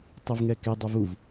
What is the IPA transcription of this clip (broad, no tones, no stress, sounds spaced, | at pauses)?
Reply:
tˤ ɪ v ŋ ɛ k e dˤ ʊ v u v